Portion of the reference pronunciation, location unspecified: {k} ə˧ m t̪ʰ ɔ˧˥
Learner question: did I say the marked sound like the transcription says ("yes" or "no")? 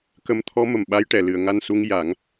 yes